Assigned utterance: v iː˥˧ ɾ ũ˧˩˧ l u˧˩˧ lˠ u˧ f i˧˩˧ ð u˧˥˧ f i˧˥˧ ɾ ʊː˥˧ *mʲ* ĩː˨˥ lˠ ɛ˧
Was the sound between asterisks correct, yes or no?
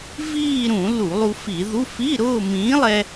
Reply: no